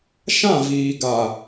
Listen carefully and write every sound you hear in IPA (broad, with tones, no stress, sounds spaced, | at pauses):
ʃ ã˦˨ v iː˨ ɡ a˨